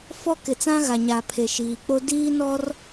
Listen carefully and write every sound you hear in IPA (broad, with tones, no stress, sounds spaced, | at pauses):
f ɔ˦ k ɪ˨ t͡s ã˦ ɣ a˨ ɲ a˨ pʰ e˨ ʃ iː˨ k͡p o˦ d iː˦ n ɔ˦ r